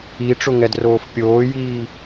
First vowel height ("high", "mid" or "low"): high